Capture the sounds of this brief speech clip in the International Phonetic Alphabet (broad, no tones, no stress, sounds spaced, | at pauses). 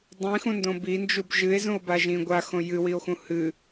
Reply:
dˤ ĩ x ũ n d õ b i n d͡ʒ u b ʒ ɨ e̯ z ũ o̯ b a ʒ ĩ ɡʷ a x õ j ɨ w i o̯ x ũ h ɨ